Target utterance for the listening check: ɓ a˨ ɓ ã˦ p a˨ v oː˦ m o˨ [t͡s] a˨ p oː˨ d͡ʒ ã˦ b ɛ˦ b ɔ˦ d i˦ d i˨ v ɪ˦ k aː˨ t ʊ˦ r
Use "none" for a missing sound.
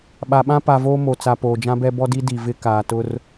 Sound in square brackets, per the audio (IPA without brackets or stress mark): t͡s